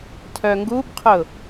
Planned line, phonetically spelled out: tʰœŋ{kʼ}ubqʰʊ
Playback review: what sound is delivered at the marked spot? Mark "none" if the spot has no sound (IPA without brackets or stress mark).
ɡ